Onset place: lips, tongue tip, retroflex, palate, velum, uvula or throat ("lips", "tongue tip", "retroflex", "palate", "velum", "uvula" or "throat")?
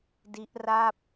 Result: tongue tip